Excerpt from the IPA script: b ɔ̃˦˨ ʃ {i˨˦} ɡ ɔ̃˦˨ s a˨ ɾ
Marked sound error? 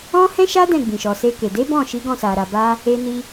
no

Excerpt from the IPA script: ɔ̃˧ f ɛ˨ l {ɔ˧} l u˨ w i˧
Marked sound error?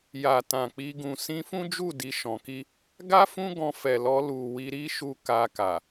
no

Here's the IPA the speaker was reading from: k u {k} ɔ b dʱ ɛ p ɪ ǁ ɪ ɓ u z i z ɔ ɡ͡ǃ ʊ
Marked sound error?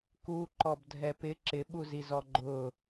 yes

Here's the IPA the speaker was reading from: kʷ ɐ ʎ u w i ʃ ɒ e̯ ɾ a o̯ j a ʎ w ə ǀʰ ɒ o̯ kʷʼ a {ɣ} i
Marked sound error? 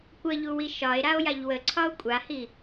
yes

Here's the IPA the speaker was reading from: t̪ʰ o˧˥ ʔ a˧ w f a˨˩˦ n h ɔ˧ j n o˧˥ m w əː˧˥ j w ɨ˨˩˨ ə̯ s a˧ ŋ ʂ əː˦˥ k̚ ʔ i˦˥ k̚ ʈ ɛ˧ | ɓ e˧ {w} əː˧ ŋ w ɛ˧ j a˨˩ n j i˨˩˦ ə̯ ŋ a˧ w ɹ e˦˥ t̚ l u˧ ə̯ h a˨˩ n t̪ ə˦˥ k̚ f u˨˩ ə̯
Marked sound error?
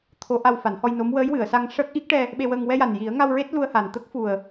no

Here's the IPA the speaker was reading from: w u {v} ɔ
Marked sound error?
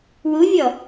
yes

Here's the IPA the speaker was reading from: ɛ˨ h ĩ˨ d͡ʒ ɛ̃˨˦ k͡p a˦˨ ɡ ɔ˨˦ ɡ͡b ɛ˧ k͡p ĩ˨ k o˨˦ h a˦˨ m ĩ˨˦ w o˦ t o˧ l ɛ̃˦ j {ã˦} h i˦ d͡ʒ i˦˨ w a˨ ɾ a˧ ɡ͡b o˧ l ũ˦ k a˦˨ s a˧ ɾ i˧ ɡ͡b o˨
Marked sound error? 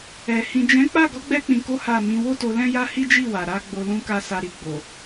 yes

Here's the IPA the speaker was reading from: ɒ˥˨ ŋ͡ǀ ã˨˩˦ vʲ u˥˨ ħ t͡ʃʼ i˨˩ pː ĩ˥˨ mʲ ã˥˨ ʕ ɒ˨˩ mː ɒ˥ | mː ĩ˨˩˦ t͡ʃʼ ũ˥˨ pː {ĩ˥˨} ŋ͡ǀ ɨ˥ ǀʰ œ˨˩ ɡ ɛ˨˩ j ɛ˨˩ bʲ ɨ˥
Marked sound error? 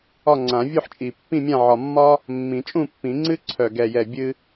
yes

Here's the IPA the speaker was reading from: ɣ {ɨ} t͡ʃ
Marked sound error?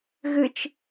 no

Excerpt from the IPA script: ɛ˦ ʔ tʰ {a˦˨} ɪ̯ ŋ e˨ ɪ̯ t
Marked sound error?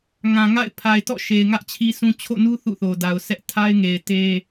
yes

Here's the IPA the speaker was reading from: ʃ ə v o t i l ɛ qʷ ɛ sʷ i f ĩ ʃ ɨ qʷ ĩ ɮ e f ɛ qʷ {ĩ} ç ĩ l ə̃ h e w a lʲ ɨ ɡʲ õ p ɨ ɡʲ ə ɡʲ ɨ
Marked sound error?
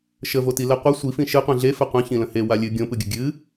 no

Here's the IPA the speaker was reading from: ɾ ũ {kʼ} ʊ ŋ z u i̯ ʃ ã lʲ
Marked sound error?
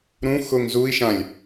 yes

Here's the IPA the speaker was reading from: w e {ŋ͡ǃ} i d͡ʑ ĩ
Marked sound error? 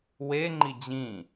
no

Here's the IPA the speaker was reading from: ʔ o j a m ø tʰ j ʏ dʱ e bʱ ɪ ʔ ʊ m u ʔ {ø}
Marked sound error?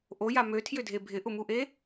yes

